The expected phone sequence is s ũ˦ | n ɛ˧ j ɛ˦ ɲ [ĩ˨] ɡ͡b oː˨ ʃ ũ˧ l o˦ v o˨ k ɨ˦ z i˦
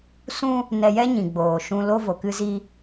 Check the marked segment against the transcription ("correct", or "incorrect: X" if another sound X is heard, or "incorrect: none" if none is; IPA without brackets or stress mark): correct